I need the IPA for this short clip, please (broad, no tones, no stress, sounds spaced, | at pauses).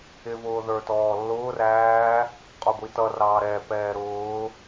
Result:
ɪ v ʊː ð ə˞ t ɔː lː ʊː r æː | qʼ ɔ ɡʷ i t ʌ r ɑː ɾ ɛ p ɛː ɾ ʊː